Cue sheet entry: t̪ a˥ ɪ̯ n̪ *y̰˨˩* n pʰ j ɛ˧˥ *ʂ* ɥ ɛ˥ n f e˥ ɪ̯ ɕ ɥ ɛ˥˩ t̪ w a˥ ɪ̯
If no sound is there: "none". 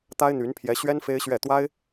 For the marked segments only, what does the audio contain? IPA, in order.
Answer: y˧˥, ɕ

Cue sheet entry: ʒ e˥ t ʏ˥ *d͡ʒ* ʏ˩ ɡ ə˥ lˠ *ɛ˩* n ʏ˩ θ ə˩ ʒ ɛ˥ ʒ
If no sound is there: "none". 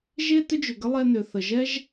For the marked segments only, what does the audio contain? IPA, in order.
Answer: d͡ʒ, ɛ˧

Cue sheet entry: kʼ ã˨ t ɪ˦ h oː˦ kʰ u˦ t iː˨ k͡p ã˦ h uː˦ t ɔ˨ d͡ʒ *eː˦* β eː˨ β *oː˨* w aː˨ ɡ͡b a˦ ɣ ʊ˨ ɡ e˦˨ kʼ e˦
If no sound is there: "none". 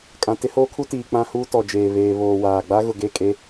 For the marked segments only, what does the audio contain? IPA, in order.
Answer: eː˨, oː˨

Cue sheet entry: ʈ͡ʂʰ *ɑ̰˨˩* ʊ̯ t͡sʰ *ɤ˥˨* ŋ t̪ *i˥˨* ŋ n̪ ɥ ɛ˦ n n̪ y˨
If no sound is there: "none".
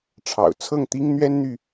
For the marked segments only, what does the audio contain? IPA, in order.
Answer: ɑ̰˨˩, ɤ˥˨, i˦

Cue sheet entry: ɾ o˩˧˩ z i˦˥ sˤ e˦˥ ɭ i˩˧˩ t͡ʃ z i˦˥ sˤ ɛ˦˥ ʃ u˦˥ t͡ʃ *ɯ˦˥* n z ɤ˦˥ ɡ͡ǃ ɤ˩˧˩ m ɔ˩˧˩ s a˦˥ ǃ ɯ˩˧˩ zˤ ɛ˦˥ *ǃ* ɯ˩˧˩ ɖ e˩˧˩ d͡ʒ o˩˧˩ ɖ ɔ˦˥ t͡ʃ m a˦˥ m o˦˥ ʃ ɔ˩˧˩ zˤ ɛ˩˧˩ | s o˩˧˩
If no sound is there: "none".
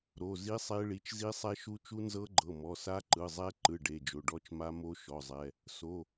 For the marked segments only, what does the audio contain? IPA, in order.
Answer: u˦˥, ǃ

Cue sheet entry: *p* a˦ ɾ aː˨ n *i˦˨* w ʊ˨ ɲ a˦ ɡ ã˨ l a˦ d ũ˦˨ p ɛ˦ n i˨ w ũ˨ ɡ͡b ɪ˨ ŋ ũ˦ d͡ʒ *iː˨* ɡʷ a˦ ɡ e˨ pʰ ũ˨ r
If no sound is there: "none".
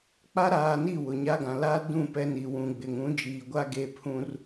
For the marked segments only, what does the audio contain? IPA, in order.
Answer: k͡p, i˦˨, iː˨

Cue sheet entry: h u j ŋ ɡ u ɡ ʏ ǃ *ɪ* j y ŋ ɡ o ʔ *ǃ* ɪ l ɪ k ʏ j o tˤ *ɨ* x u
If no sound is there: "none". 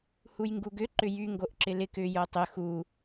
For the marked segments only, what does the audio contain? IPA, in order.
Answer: ʏ, ǁ, ʏ

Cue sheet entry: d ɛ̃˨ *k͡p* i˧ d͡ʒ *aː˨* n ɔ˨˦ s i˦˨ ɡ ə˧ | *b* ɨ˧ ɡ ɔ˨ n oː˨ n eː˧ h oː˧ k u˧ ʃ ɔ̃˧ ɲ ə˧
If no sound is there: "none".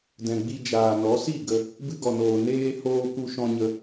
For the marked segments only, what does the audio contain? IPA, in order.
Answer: ɡ͡b, aː˨, b

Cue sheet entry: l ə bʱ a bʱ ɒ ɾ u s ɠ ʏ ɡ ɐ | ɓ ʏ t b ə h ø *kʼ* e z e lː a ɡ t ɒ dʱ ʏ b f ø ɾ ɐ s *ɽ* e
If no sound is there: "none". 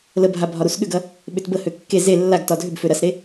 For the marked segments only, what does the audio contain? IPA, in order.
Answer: kː, ɾ

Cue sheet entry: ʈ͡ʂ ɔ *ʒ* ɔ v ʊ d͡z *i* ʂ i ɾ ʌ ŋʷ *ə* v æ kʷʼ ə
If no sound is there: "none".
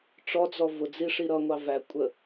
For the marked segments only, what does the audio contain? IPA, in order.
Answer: d͡z, i, ɑ

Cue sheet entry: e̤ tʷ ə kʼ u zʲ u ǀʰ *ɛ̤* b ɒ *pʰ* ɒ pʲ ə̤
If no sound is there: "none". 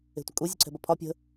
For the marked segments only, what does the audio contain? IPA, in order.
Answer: ɛ̤, pʰ

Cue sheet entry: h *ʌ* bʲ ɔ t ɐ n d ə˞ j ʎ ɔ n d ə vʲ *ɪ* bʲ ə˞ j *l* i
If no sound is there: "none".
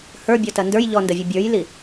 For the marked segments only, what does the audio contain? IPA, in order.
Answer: ə˞, ə, l

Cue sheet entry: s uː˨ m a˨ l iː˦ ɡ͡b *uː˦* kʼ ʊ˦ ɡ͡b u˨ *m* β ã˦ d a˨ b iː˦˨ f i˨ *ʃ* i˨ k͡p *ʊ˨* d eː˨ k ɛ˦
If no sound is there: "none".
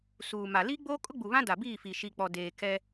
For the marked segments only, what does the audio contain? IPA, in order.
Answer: oː˦, none, ʃ, ɔ˨

